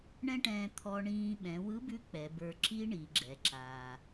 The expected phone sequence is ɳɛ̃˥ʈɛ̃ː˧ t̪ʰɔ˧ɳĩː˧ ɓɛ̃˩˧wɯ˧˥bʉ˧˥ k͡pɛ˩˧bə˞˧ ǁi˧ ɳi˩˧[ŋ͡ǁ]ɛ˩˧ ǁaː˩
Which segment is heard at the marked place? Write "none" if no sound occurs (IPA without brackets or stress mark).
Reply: ɡ͡ǁ